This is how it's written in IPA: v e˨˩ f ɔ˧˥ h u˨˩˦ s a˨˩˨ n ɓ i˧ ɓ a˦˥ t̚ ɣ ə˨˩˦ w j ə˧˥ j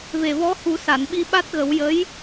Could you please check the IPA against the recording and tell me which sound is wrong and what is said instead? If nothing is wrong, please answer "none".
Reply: f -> v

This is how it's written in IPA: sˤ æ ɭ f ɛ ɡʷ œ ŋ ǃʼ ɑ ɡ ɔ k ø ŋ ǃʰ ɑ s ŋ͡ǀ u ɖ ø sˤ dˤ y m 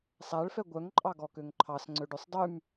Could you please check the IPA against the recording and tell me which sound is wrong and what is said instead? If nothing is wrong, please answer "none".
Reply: u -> ø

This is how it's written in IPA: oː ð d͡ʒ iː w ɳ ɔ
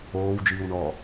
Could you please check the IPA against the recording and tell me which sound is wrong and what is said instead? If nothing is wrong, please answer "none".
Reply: ð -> w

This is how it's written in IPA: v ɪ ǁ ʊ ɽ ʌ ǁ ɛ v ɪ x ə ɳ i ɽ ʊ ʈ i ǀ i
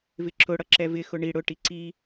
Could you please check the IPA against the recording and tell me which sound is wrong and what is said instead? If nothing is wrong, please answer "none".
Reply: ə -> ʊ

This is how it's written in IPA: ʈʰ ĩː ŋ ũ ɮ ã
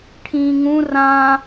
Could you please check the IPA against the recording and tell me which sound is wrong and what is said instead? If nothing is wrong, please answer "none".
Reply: ɮ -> r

